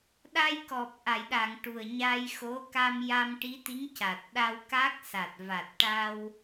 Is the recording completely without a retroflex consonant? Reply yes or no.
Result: no